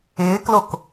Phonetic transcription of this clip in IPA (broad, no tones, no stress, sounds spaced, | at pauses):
ɪː k l o k